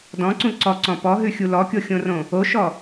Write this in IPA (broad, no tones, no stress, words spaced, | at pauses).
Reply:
dɔ̃ǀũ ǀɔǀɔ̃ pɔɦʉxʲu lɔkʲoxʲõrõ | oʃɔ